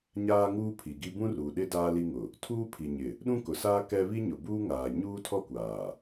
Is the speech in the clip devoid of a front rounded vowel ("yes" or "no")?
yes